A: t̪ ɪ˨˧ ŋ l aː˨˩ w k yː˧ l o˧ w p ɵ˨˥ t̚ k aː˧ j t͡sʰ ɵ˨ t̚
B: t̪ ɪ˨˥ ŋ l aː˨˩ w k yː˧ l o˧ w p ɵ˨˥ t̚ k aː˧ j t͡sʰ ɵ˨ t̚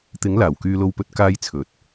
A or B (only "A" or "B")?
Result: B